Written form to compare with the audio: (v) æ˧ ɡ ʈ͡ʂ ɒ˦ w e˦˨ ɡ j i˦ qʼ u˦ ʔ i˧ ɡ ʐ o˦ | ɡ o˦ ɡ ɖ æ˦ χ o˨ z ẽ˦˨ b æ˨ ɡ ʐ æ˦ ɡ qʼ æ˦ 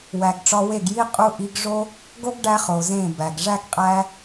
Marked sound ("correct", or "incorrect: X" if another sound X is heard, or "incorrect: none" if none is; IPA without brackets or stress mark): incorrect: w